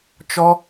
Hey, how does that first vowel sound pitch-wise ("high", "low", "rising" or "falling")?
high